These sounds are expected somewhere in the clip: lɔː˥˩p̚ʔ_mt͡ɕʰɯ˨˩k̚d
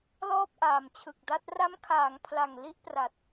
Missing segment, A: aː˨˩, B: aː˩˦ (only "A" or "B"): A